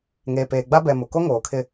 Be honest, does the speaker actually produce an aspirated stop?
yes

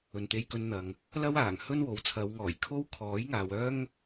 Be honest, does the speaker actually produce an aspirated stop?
yes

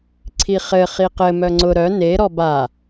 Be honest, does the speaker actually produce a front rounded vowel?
yes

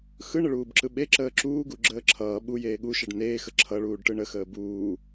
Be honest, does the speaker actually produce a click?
yes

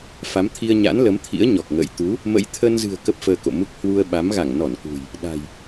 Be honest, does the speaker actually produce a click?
no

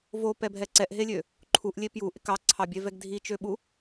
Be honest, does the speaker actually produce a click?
yes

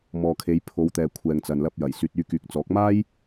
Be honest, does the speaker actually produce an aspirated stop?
yes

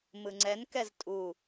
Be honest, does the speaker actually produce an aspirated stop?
no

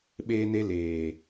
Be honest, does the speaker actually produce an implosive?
yes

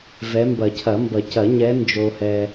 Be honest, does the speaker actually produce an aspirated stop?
yes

